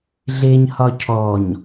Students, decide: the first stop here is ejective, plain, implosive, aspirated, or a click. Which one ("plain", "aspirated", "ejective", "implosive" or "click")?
aspirated